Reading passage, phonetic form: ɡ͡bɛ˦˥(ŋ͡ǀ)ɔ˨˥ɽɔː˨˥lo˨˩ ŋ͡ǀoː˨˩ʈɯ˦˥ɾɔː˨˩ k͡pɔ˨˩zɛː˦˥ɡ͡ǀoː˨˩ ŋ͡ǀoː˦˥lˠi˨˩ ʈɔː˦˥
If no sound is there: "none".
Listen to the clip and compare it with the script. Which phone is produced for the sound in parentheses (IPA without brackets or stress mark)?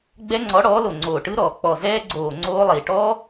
ŋ͡ǀ